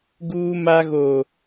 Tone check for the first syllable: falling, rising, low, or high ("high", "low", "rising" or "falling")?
high